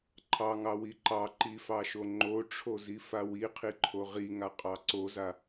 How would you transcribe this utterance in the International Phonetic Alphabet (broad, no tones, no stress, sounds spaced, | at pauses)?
ǃʰ ɑ ŋ ɑ w i ǃ ɑ ǃ i f ɑ ʃ o ŋ͡ǃ o ʈ͡ʂʰ o z i f a w i qʰ i ǃʰ o ʁ i ŋ a qʼ ɑ ǀ o z a